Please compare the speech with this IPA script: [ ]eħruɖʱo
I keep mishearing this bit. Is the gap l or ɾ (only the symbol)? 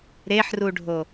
ɾ